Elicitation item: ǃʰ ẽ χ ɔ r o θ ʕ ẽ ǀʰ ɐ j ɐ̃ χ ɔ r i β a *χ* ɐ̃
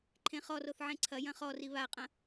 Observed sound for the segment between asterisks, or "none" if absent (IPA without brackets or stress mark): qʼ